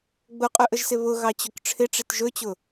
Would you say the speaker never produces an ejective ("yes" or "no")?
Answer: no